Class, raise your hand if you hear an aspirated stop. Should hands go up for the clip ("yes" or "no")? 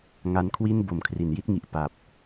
yes